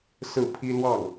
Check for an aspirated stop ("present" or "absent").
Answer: present